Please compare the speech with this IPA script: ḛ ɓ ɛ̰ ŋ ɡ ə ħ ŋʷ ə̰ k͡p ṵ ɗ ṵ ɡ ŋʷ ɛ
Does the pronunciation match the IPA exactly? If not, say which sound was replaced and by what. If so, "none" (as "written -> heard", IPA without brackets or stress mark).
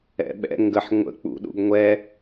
ḛ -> ɛ̰